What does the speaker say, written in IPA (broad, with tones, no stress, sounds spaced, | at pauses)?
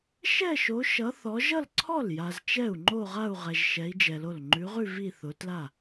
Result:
ʃ ɛ˥˧ ʃ o˨˦ ʃ ʌ˨˦ θ ɔ˨˦ ʒ ʌ˥˧ l ǀʰ ɔ˥˩ l j a˨ z t͡ʃ ɛ˥˩ u̯ ŋ͡ǃ o˥˧ ʁ a˥˧ u̯ ʁ ɛ˨ ʒ ʃ ɛ˨˦ i̯ d͡ʒ ɛ˨ l o˥˩ l ŋ͡ǃ ʉ˨˦ ʁ ʉ˥˧ v i˥˧ θ ʊ˨˦ t l a˥˩